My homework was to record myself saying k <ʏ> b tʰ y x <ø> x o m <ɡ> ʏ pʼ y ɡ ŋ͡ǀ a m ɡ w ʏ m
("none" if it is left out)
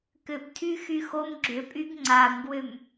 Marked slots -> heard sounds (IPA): ʏ, y, ɡ͡ǁ

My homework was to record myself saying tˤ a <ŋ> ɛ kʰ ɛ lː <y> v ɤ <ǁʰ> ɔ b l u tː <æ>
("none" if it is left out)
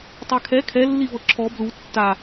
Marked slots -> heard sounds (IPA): kʰ, i, ǁʰ, a

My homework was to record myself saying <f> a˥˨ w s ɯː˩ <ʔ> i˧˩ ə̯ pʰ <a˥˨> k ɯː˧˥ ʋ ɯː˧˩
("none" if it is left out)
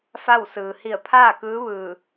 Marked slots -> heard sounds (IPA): f, h, aː˥˨

